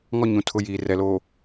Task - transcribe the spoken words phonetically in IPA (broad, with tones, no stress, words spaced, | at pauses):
ŋɔ˦ɲũ˨tʰʊ˨˦ jiː˨rɛ˨lo˨